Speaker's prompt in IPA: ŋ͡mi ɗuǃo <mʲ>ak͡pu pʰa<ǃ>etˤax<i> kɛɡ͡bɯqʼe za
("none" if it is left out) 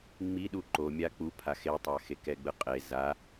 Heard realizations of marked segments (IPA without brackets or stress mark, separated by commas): mʲ, x, e